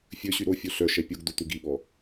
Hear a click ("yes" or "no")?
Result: no